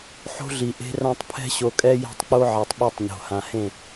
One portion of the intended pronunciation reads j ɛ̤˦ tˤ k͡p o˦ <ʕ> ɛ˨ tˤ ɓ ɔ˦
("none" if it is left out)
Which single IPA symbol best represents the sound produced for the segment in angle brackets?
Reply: ʕ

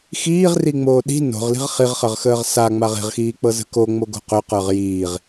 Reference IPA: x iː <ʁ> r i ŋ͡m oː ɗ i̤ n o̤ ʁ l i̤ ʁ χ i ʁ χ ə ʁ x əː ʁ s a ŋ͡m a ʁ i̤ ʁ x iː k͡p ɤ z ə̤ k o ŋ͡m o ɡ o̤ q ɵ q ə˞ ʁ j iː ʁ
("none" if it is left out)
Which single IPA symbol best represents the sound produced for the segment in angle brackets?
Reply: ʁ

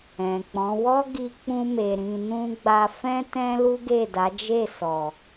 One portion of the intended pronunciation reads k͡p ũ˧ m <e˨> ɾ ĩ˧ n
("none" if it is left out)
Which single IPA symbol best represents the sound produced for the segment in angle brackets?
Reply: e˨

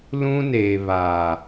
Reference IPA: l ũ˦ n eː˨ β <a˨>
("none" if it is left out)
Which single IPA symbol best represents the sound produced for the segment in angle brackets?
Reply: aː˨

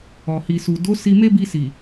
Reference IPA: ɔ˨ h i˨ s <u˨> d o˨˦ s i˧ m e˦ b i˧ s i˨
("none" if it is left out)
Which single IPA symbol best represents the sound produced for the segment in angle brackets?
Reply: u˨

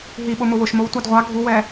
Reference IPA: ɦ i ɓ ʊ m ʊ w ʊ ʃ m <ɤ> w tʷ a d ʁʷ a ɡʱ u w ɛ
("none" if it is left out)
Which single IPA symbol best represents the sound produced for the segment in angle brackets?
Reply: o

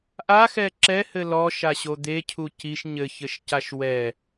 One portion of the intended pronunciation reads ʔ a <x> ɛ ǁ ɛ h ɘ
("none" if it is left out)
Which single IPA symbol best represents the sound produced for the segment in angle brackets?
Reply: x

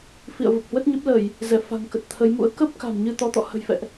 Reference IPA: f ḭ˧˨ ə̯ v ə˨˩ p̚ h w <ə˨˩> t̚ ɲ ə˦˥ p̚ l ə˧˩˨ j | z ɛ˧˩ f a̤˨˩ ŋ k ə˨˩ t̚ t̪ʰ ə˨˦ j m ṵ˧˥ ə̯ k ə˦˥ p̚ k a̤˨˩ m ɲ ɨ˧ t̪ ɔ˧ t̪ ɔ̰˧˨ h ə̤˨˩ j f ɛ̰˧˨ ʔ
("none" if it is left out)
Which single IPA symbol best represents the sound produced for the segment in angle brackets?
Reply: ə˦˥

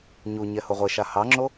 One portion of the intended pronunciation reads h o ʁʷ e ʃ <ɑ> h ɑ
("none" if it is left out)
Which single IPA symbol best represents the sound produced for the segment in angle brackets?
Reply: a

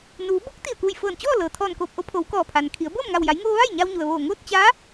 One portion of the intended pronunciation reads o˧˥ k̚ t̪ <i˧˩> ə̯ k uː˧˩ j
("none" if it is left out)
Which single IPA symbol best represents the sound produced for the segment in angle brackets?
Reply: i˧˩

